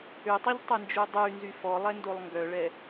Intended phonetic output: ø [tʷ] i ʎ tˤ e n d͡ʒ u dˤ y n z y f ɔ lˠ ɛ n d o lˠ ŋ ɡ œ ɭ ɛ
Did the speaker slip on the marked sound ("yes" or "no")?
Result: yes